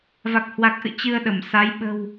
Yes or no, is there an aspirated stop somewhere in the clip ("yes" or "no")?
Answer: no